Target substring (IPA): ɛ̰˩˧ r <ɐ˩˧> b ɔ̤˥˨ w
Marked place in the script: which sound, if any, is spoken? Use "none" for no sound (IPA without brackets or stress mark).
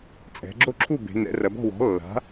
ɐ˩˧